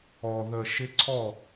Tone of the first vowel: low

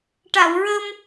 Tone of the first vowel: low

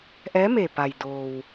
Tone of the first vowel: rising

